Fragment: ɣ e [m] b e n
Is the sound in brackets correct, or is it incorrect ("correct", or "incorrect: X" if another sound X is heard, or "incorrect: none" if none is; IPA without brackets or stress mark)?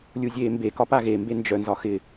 correct